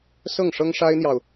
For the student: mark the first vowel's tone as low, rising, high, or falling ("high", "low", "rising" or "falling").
falling